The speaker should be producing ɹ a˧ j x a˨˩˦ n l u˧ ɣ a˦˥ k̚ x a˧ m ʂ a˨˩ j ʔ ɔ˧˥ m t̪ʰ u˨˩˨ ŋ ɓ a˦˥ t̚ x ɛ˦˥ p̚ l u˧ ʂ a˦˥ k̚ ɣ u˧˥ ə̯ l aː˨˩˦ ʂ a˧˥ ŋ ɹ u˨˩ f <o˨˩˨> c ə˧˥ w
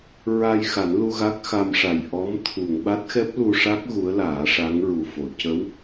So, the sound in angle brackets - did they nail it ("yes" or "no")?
yes